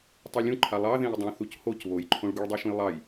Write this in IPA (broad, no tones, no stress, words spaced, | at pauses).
tˤelʲũǃʰa lˠɑðẽjdˤã θuchoc βojǃʰõɭɡuɭ dˤoʃũjlˠɑj